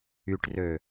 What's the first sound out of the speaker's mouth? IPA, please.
y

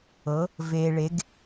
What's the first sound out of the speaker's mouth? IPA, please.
ɤ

